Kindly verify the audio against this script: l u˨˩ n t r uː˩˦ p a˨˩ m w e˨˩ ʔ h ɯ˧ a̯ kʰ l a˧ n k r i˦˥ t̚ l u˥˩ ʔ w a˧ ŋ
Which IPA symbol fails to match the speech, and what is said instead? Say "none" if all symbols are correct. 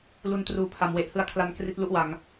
p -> pʰ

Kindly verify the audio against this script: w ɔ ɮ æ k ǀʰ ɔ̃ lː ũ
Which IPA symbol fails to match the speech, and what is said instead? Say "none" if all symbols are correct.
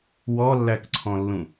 ɮ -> lː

